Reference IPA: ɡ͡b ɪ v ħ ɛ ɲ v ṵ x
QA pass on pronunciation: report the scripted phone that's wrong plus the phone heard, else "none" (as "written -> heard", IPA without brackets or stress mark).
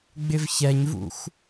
ħ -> ç